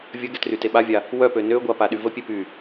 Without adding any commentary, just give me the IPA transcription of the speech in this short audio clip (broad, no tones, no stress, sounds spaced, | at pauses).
vʲ ə ɡ ɛ t r y t e ɓ a vʲ a | w œ p ø n ø ɡʷ a p a ɗ y v ə pʲ e p y